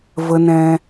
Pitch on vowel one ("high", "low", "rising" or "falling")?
low